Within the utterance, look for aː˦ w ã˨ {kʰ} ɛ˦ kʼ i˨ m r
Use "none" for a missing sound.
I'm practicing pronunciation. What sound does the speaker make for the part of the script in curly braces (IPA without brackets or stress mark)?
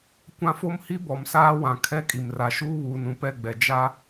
kʰ